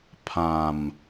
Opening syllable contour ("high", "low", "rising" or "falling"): low